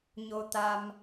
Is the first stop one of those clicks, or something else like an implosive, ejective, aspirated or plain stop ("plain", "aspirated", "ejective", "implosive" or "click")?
plain